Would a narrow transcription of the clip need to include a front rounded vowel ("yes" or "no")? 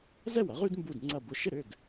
yes